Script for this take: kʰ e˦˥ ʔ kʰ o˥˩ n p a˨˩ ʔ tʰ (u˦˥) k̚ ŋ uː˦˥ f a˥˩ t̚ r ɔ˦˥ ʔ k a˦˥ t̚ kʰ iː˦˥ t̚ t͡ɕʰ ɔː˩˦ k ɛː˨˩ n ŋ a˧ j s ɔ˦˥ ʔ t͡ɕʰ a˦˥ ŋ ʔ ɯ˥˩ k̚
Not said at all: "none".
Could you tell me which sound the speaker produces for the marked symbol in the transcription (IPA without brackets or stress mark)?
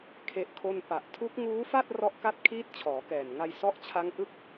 u˦˥